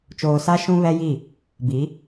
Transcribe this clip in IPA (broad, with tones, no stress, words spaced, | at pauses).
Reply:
t͡ʃoː˨sa˦ ʃũ˦βɛ˦ji˦˨ | bi˨˦